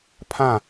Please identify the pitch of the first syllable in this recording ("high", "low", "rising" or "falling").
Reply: falling